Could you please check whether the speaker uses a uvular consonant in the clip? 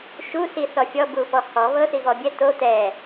no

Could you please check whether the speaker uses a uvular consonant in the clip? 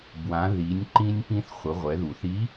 yes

